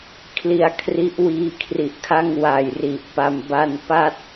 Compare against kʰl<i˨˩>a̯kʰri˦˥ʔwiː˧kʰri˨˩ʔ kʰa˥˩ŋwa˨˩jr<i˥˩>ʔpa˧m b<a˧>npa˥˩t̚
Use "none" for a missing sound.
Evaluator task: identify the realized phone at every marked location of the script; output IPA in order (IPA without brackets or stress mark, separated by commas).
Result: i˧, i˨˩, a˧